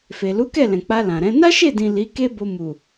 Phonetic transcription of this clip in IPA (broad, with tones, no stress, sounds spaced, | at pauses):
f e˨ l u˨˦ k ɛ˦˨ l ɛ̃˨ k͡p a˧ l ã˨ ɾ ɛ̃˨˦ n a˦ ʃ e˦˨ d ĩ˨ l i˨˦ k e˦ b o˧ m u˨